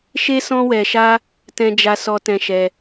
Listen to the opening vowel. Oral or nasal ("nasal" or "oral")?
oral